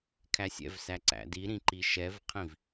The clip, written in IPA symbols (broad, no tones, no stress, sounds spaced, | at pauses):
kʰ æ sʲ ɛ̰ v s æ ǀ æ̰ d i ɾ ĩ ǃ i ʃ ɛ v qʰ ĩ v